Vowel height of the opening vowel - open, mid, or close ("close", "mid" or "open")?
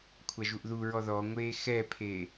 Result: open